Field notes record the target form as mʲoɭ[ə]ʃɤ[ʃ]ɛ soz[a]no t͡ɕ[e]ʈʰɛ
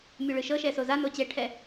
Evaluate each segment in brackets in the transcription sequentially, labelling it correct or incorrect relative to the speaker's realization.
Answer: incorrect: ɯ, correct, correct, incorrect: ɛ

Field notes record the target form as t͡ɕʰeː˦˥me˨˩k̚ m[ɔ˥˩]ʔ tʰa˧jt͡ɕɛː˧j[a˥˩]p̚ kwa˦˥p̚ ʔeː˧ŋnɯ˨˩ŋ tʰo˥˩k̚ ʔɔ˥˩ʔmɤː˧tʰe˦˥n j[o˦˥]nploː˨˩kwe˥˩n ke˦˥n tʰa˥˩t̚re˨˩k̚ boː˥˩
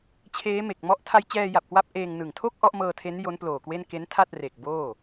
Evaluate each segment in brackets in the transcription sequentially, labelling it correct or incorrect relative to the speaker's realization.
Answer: correct, incorrect: a˨˩, correct

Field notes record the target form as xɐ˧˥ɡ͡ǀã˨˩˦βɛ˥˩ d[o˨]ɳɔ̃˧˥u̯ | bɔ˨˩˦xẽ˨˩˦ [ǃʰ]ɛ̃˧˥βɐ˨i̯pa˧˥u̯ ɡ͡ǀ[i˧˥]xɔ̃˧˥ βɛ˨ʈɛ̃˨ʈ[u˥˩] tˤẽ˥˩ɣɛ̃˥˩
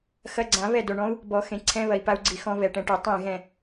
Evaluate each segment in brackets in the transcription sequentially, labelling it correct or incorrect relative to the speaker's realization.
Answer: correct, incorrect: ǀʰ, incorrect: i˨, incorrect: u˨˩˦

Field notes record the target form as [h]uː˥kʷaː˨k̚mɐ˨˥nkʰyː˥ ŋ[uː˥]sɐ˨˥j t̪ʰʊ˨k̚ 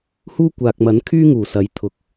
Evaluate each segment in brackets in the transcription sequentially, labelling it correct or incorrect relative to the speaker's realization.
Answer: correct, incorrect: uː˨˩

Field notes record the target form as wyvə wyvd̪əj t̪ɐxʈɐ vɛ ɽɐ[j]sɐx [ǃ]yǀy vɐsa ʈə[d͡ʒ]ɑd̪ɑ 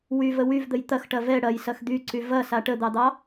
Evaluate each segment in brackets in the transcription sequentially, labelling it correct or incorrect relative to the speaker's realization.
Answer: correct, incorrect: d̪, incorrect: d̪

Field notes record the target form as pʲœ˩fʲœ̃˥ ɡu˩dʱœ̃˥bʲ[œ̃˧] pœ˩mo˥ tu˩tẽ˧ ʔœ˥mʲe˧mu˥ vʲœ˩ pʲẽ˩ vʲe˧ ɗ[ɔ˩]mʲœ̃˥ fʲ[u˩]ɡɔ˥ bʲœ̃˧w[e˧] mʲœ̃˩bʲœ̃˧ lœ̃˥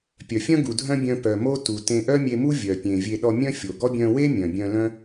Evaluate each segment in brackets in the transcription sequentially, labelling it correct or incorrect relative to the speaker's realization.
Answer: correct, incorrect: ɔ˧, incorrect: o˩, incorrect: e˥

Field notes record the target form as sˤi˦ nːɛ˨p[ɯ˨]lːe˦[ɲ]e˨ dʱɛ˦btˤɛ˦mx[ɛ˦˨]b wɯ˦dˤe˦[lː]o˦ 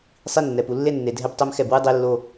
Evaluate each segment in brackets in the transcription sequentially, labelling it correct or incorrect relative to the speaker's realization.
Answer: incorrect: u˨, incorrect: nː, correct, correct

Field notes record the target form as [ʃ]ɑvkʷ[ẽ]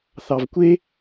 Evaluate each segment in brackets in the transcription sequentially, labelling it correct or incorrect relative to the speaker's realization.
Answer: incorrect: θ, incorrect: e

